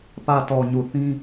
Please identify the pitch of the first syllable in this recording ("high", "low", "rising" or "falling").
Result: low